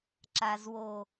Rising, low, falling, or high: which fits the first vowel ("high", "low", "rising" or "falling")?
low